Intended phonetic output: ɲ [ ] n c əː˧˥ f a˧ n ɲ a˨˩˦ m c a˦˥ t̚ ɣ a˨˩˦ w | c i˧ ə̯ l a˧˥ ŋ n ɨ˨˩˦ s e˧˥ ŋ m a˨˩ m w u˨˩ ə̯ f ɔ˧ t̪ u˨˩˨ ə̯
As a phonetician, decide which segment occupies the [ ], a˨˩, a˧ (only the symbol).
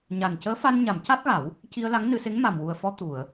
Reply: a˨˩